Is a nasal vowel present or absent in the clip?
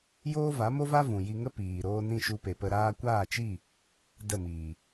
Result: present